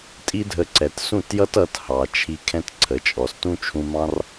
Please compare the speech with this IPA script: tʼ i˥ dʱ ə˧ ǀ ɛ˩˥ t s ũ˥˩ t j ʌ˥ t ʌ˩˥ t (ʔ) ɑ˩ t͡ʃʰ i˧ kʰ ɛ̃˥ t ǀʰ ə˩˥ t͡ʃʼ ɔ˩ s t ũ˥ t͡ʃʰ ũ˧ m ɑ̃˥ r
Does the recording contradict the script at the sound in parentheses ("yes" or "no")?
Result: yes